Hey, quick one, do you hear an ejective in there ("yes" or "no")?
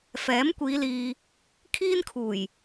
no